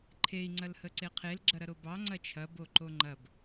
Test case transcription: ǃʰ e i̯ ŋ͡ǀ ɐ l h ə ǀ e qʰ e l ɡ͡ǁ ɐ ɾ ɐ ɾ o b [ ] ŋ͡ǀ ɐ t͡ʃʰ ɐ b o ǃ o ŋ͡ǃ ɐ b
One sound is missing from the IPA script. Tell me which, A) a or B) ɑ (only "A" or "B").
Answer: B